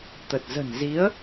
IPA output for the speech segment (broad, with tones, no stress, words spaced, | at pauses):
t̪ə˨˩t̚zə̤˨˩nzi˨˦ə̯